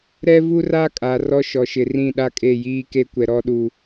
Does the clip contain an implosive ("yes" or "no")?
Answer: yes